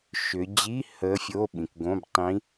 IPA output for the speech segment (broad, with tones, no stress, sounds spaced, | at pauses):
ʃ ʏ˩˧ d͡ʑ i˧˥˧ h əː˧˥ fʲ o˧˥˧ ɓ ĩ˩˧ k ɡ õ˧˥˧ b tˤ ĩ˧˥